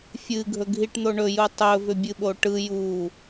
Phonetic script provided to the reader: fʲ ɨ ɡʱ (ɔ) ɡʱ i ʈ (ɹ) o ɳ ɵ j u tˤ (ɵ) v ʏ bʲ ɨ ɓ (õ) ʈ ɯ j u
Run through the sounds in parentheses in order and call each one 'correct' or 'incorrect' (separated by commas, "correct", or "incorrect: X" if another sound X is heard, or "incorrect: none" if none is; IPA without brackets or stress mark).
incorrect: ɵ, incorrect: n̪, correct, incorrect: o